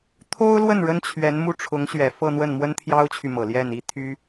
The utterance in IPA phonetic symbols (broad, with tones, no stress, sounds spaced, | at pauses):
t̪ʰ o˥ ʊ̯ l w ə˥˩ n ɻ ə˥ n t͡ɕʰ ɥ ɛ˧˥ n m u˥˩ ʈ͡ʂʰ ʊ˧˥ ŋ ɕ ɥ ɛ˨˩ f ɤ˥˧ n̪ w ə˥˩ n m w ə˥ n t̪ʰ j ɑ˥ ʊ̯ t͡ɕʰ y˨ m ɤ˨˩ l j ɛ˥˩ n i˥ t̪ʰ y˥